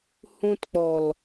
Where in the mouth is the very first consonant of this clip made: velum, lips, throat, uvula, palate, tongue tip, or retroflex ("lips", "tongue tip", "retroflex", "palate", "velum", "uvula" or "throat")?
throat